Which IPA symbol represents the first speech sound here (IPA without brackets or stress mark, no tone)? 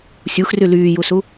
sʲ